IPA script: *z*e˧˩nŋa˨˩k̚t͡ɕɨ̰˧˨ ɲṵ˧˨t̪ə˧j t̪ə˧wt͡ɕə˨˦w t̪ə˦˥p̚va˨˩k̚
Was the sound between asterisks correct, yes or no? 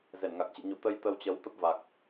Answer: yes